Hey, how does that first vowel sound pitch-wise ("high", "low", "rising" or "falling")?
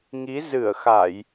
rising